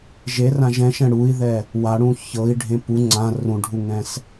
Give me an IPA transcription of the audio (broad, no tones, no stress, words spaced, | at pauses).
ʒerãʒ ɛ̃ʃɛ̃ ɽui̯ðɛ | waɽũ çɤi̯ɖʱẽ pu ŋ͡ǀã rũɖʱuŋɛ̃s